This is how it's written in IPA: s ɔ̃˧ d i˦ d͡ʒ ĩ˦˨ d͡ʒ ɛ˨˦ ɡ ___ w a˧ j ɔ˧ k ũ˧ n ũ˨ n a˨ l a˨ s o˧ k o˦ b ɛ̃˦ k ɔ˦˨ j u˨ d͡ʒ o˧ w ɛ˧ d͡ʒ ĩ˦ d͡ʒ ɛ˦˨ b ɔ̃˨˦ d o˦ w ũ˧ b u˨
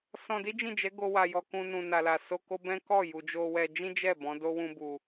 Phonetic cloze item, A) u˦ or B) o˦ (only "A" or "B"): B